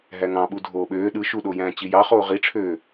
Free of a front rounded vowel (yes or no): no